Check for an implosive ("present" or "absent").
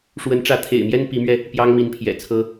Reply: absent